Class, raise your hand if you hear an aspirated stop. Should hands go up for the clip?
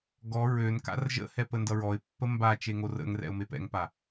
no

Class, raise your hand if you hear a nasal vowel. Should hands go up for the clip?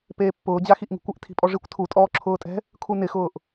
no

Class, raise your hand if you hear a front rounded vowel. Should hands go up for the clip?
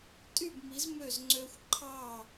yes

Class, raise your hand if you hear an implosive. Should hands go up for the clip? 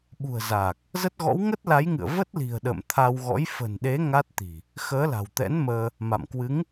yes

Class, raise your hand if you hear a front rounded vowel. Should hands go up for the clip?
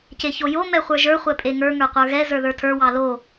no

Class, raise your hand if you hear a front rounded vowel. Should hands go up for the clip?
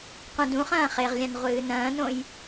no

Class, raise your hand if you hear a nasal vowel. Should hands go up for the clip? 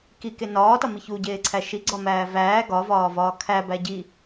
no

